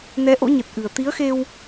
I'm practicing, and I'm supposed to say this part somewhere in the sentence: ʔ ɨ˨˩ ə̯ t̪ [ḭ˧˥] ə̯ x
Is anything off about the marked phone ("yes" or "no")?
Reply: yes